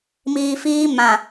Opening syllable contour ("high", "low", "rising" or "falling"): low